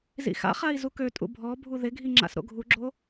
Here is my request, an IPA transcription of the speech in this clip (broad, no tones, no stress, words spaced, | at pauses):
zḭxa̰χai̯ zukøtʼṵ bʱɔ bʱuðɪɡʱi ŋ͡ǁa̰sɾo̰ɡʱuɡ͡ǁo